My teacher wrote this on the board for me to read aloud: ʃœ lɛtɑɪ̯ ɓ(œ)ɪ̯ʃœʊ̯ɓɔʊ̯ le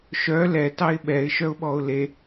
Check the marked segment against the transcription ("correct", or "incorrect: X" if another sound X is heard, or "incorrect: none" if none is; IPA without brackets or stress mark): incorrect: ɛ